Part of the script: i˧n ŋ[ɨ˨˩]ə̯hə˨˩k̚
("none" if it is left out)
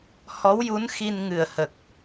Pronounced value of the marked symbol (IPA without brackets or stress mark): ɨ˨˩